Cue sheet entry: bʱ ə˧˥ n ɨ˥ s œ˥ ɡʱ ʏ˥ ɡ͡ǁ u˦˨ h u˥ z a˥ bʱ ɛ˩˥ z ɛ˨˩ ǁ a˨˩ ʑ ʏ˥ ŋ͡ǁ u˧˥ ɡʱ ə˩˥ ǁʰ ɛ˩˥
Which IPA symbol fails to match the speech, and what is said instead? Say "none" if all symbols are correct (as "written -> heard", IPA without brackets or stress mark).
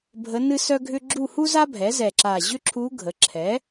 ŋ͡ǁ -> ǁʰ